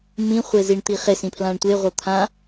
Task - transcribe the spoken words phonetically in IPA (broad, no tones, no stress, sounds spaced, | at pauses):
m ĩ χʷ e z i ɳ t̪ i χ e s ĩ pʰ l ã ɳ tʷ e ʁʷ ɤ t̪ʰ ã